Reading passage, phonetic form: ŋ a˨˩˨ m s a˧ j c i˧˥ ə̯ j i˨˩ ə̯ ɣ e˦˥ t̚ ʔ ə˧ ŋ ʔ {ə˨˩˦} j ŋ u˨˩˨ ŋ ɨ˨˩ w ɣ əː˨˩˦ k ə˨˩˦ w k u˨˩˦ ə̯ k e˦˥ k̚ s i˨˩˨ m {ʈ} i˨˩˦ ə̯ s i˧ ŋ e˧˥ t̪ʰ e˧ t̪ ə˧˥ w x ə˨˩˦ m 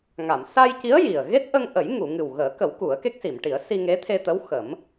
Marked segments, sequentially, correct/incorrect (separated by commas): correct, correct